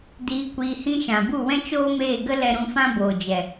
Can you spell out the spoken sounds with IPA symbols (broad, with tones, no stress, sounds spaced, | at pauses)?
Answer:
d iː˧ kʷ iː˧ h ĩ˧ ʃ ã˨ b u˦˨ w ɛ̃˦ t͡ʃ oː˦ m eː˦˨ ɡ ə˦ l ɛ˧ ɾ ũ˧ f ã˦ b oː˨ d͡ʒ ɛ˨